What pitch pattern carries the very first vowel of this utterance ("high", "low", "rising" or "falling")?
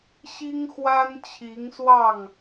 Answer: high